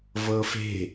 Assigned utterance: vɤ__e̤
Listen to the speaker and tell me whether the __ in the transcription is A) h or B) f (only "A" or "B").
B